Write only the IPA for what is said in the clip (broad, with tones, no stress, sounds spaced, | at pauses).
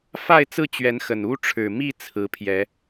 f a˥˨ ɪ̯ t͡s ɹ̩˥˨ t͡ɕ ɥ ɛ˨˦ n x ə˨˩ n u˦ ʈ͡ʂʰ ɻ̩˨˩ m i˥˨ t͡sʰ ɹ̩˨˦ pʰ j ɛ˨˦